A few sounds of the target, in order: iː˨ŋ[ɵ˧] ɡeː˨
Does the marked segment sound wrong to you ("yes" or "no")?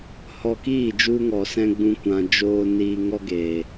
yes